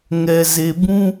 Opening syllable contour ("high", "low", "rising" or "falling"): low